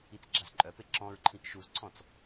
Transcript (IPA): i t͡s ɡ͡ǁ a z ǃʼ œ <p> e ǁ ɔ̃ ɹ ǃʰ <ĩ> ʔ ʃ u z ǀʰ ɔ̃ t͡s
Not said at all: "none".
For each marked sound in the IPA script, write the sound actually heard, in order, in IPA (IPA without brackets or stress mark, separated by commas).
p, ĩ